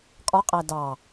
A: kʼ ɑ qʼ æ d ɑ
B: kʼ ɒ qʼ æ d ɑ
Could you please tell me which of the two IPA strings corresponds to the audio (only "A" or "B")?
B